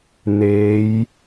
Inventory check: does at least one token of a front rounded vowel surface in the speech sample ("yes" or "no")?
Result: no